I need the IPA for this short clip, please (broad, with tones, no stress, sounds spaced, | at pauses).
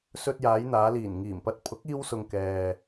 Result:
s ɵ˧ t̚ j aː˨˧ j n̪ aː˨˧ l iː˨˩ n ŋ iː˨˩ m p ɐ˧ t̚ pʰ ʊ˨˥ k̚ iː˧ w s ʊ˨ ŋ k ɛː˨